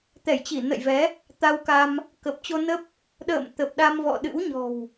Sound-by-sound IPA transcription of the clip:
t̪ɛ˧˩jt͡ɕi˧˩nə̰˧˨jvɛ˨˦ | t̪a˧wka˧m | kə˨˩p̚t͡ɕo˧nə˦˥p̚ | ɗə̰ː˧˨m t̪ə˨˩p̚ɗa˧mvɔ̰˧˨ ɗɨ̰˧˥wɲɔ̤˨˩w

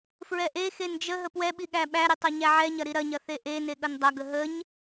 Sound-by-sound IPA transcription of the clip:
fɹɛʔexen d͡ʒə ɦəpwɛɓi ɠæɓæɾi tˤɐɲæʕɛɲɐ ɾiɾɐɲɐ θeʔene ɠɐndˤɐɡə ɦəɲ

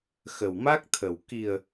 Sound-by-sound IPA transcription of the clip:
xə˨˩wma˦˥k̚t̪ʰə˨˩w ki˨˩ə̯

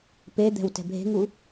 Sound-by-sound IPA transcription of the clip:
ped̪ɛ̤wtɛ̤ bʱe̤ŋu

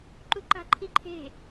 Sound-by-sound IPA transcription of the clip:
ǃuǃa̤ǃʰiǃʰe̤

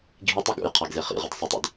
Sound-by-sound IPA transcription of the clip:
ɡʱitˤɵɡ ṵjqʰaɡze χḭʁɨd sˤɐtˤḭd

